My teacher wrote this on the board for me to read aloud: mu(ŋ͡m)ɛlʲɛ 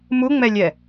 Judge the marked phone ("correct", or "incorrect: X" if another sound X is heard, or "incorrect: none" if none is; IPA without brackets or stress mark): correct